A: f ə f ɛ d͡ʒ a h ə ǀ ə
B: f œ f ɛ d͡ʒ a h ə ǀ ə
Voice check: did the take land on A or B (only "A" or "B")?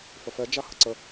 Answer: A